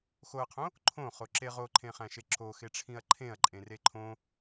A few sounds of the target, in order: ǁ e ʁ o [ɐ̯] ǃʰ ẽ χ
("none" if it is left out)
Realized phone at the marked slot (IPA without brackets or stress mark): none